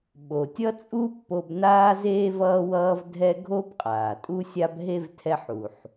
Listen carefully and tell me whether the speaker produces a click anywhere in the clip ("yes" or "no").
no